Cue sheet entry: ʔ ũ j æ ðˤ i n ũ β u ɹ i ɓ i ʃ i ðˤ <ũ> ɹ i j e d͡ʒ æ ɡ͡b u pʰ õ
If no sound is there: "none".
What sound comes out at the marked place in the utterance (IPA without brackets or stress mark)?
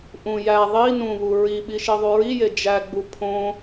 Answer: u